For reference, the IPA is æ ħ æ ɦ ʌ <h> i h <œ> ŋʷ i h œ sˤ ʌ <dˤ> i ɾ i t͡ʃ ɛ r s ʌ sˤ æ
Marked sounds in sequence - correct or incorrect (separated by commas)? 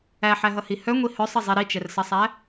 correct, correct, incorrect